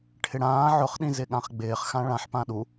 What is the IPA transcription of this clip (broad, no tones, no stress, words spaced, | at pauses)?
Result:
ʈʰɪɽãː ʕʊχɗĩ zɪɠãχɡ͡bɪːχxã ɭãħpã ɗu